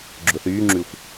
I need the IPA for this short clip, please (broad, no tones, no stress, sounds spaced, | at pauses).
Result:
ɡ͡ǁ ʊ θ yː ŋ͡ǁ y xʷ